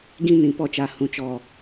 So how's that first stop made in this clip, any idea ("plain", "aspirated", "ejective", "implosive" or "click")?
plain